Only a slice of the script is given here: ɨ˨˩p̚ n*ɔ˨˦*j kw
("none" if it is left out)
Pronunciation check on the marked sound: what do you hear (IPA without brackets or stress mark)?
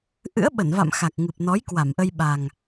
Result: ɔ˨˦